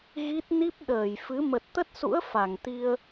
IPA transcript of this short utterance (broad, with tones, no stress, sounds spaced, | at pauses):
ɣ i˦˥ t̚ n i˦˥ p̚ ɗ əː˧˩ j f ɨ˨˦ m ə˨˩ t̚ t̪ ə˦˥ t̚ s ṵ˧˥ ə̯ f a˧˩ ŋ t̪ i˧ ə̯